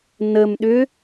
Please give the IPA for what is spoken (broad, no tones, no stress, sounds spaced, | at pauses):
n ə m ɗ ʏ